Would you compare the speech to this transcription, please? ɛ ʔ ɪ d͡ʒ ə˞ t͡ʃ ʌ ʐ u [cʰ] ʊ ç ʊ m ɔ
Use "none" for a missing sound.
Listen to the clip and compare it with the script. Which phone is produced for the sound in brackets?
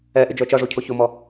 cʰ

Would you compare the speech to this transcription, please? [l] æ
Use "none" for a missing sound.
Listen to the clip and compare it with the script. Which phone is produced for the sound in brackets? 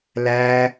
l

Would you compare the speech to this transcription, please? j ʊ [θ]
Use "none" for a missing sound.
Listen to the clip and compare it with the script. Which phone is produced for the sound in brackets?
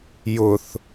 θ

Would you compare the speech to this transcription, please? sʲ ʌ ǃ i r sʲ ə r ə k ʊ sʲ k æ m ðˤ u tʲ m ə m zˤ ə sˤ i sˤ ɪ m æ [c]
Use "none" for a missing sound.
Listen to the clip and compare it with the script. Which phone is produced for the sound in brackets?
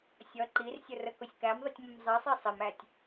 tʲ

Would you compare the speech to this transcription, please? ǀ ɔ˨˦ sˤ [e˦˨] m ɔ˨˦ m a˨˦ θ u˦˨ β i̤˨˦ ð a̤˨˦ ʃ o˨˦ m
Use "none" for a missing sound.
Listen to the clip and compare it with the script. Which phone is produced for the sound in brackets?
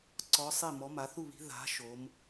e˦˨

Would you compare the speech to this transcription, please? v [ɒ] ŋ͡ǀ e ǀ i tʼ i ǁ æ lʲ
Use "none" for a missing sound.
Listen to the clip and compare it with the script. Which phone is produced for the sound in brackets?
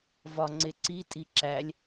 ɒ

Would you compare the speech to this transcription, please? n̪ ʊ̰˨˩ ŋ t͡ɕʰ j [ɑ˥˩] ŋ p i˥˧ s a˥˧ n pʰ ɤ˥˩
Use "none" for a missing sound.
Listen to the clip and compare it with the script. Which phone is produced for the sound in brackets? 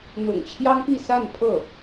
ɑ˥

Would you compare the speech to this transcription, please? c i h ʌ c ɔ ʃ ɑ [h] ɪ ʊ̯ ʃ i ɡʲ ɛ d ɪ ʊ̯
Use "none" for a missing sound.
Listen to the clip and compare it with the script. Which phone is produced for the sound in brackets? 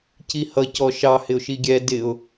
h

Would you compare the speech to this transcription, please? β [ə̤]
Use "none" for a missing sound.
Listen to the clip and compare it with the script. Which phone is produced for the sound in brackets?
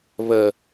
ə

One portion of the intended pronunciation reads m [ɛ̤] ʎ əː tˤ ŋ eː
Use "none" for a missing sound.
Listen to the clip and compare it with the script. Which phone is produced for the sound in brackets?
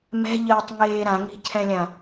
ɛ̤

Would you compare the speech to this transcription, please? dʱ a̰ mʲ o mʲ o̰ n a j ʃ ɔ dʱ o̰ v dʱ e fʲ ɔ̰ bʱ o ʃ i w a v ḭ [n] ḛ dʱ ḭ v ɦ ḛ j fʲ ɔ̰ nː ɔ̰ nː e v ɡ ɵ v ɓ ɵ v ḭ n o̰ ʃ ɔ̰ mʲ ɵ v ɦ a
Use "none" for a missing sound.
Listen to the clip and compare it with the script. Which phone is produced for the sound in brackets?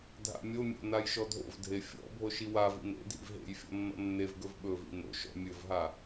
n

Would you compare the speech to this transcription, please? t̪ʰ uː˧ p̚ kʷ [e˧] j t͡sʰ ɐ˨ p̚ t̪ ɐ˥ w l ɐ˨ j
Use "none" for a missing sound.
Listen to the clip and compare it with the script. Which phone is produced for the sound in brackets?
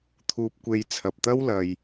e˧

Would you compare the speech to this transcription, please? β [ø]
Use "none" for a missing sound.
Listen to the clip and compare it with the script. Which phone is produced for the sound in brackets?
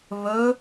ɵ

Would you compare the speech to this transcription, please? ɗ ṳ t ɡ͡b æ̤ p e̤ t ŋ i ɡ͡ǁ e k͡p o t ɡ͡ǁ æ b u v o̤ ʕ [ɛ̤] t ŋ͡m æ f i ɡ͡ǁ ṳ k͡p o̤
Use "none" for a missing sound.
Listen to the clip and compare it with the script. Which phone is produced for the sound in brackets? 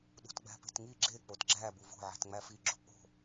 e̤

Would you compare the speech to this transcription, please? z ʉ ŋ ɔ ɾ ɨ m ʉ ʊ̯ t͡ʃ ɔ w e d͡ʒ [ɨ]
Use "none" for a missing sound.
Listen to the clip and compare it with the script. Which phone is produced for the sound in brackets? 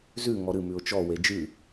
ɨ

